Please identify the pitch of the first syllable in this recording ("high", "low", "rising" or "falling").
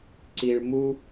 high